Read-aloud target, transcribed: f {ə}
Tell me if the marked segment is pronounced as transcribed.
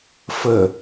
yes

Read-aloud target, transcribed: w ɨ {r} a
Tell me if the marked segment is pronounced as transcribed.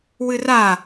yes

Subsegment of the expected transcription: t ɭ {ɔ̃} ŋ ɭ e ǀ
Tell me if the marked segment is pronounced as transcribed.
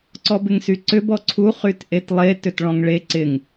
yes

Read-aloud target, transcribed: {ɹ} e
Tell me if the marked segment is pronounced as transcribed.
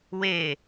no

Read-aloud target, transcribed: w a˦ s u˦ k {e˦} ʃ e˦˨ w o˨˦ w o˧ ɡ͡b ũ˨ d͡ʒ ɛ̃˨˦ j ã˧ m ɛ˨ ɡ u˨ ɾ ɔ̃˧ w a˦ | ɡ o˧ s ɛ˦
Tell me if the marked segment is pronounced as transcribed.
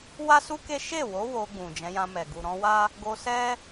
yes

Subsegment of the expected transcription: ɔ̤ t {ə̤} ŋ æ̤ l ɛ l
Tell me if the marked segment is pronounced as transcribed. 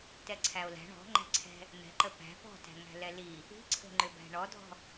no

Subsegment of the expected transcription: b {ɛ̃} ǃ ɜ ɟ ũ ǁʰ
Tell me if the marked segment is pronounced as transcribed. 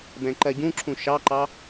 yes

